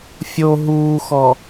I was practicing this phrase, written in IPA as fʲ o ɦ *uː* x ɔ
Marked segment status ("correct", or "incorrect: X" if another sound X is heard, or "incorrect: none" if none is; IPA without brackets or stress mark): correct